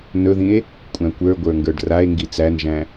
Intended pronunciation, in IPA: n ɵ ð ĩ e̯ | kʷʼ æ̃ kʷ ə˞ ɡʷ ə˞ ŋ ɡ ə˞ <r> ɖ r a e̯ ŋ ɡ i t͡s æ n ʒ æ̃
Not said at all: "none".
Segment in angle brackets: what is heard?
none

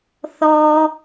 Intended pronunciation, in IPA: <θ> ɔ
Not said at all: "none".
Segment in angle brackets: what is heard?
θ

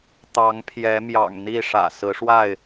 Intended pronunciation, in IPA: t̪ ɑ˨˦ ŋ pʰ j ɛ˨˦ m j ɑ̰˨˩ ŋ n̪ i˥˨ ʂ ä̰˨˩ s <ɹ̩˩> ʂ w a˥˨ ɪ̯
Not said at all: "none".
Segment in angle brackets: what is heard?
ɹ̩˨˦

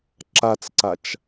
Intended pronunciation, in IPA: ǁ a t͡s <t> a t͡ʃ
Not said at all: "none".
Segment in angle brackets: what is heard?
ǀ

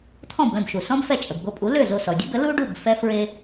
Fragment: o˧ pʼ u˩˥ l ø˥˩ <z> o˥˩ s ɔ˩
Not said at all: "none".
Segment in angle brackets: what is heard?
z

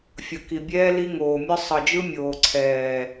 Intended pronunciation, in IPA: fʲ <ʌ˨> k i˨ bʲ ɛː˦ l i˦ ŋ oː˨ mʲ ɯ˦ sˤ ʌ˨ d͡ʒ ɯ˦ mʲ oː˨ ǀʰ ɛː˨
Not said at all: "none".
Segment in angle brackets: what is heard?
ʌ˨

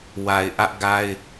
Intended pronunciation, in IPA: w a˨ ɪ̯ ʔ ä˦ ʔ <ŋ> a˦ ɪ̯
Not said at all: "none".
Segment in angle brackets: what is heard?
ɡ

